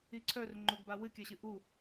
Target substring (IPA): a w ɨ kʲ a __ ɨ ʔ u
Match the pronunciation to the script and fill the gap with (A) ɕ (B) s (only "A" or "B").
A